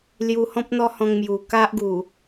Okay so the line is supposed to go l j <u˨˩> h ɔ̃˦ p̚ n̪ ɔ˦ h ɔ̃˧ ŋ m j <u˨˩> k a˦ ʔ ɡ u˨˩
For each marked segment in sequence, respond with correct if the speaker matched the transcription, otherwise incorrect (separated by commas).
incorrect, correct